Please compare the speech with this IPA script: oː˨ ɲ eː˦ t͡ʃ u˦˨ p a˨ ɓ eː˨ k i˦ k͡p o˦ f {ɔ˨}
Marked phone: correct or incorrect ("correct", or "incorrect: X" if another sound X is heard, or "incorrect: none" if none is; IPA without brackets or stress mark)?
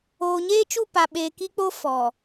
correct